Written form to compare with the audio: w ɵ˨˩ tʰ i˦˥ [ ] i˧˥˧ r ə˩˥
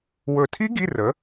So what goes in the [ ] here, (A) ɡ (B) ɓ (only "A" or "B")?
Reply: A